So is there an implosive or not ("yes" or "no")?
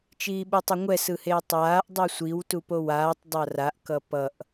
yes